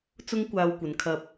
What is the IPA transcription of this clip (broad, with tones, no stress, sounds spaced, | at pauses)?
t͡s ʊ˥ ŋ kʷ aː˧ w kʷ ɐ˨˧ n kʰ ɐ˧ p̚